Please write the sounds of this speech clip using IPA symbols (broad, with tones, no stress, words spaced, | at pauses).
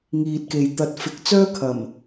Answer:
ŋiː˨t̚ke˨j t̪ɐ˨˥t̚fɪ˨˥k̚t͡sœː˥ kʰɐ˨˩m